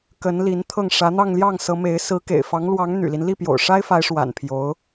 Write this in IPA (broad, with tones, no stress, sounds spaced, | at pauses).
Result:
k ə˧˥ n l i˧˥ n t̪ʰ ɤ˥˩ ŋ ʂ ä˧˥ n̪ ɑ˥˧ ŋ l j ɑ˥˩ ŋ s ɤ˧˥ m e˧˥ ɪ̯ s ɹ̩˧˥ k ḛ˨˩ ɪ̯ f ɑ˧˥ ŋ l w ɑ˧˥ ŋ n̪ y̰˨˩ l i˦ n l i˥˩ p j o̰˨˩ ʊ̯ ʂ a˥ ɪ̯ f a˧˥ ɪ̯ ʂ w a̰˨˩ n pʰ j o˧˥ ʊ̯